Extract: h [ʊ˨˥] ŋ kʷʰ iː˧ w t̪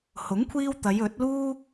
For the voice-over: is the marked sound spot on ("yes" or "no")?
yes